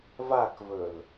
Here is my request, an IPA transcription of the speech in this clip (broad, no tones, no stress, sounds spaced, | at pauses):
v a k v ɵ l